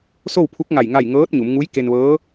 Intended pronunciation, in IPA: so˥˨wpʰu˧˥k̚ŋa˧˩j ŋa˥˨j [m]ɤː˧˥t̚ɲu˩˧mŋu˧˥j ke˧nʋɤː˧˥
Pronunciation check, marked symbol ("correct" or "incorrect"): incorrect